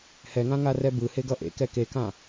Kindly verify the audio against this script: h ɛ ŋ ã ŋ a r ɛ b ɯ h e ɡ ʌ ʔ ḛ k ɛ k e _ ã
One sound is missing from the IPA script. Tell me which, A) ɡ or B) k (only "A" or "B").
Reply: B